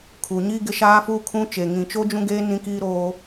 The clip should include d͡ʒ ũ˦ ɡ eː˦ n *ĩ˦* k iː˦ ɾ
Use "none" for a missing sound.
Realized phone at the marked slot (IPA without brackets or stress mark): ĩ˦